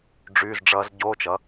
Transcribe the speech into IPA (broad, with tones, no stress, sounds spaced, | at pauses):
ɖ͡ʐ y˧˥˧ z ɖ͡ʐ ʌː˦˥ z ɟ oː˧˥˧ t͡ʃ ʌ˩˥